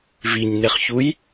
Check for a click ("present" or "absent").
absent